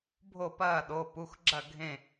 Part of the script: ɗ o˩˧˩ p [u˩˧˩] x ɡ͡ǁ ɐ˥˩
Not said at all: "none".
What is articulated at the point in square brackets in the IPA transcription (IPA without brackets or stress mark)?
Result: u˩˧˩